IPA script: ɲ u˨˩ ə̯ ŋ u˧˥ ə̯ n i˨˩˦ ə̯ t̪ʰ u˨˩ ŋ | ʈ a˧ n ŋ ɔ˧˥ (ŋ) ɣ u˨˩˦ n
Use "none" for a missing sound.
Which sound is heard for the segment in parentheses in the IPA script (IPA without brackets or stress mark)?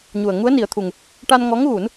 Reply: ŋ